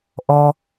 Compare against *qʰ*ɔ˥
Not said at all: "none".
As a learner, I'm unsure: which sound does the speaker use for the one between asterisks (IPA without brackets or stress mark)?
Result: ʔ